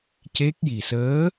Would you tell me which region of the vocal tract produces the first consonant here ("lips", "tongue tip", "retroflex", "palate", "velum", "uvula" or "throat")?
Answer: palate